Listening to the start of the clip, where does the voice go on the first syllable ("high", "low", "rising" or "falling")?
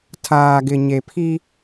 low